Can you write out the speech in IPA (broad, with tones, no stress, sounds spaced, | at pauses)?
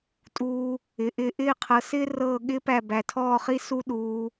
tʼ uː˧ | ɪ˩˧ ʔ ɪː˧ ʔ ɪː˥˧ qʰ ɤ˧ s ɪː˥ r ɤː˥˧ ɠ ɪː˥ p æ˥˧ b æ˧ tʰ ɔː˥˧ χ i˥ s u˥ ɗ uː˥